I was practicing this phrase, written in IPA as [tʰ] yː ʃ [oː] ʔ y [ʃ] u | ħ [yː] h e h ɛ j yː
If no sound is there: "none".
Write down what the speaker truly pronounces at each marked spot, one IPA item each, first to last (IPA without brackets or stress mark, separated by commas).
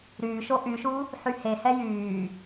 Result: ɾ, o, ʃ, y